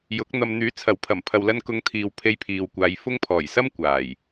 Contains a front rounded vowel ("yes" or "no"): yes